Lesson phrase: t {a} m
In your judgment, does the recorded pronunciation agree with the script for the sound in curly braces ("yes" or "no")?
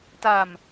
yes